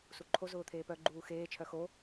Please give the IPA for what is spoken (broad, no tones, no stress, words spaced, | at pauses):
suǃʰo zʊːt̪ʰeːpœ ɡ͡ǃuːxeː t͡ʃʰœxo